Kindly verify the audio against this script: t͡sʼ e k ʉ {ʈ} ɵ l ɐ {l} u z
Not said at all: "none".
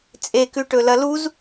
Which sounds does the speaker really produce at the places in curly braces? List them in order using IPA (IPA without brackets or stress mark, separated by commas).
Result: ʈ, l